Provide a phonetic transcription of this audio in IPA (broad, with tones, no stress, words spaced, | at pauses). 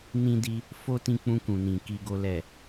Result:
nĩ˧di˧ | fo˧ tĩ˧k͡pũ˧ kũ˨nĩ˨ ki˨ɡo˨ lɛ˨